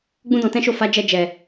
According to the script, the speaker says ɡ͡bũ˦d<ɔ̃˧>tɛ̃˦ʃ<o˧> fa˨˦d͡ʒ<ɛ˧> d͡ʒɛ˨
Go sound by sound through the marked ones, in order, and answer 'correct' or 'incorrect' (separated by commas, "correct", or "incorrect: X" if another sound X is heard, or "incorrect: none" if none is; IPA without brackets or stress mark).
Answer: correct, incorrect: o˦˨, correct